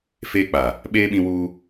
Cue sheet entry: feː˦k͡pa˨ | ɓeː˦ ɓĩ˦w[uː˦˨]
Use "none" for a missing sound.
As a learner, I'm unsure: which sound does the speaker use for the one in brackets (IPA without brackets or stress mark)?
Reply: uː˦